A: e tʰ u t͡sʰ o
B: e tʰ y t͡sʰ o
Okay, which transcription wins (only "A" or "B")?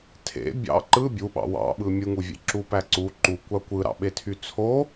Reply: B